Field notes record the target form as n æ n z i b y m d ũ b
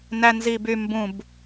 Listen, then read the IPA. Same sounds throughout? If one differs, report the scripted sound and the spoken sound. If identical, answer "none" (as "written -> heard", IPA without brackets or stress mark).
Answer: d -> b